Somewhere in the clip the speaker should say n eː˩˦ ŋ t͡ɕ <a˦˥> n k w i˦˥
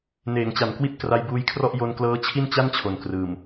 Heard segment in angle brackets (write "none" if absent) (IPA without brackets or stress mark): a˩˦